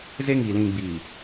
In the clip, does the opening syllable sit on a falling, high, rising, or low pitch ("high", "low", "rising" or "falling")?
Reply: high